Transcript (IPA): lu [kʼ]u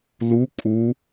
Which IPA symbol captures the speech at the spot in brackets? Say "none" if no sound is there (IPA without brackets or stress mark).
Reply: kʼ